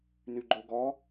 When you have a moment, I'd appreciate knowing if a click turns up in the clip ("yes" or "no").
yes